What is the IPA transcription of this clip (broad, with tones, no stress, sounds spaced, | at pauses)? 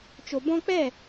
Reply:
t͡ʃ o˨ b ɔ̃˧ k͡p ɛ˦˨